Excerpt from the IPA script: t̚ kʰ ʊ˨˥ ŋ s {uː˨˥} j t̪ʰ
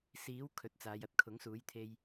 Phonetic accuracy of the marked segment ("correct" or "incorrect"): correct